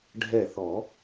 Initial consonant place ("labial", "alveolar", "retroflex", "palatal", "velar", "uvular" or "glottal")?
retroflex